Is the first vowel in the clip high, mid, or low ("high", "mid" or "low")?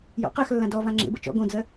mid